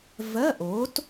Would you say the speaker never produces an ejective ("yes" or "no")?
yes